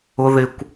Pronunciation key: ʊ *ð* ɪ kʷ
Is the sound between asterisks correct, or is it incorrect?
correct